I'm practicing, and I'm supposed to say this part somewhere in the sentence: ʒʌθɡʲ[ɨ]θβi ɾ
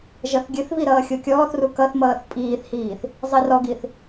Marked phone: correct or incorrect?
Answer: correct